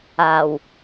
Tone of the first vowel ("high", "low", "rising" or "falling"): low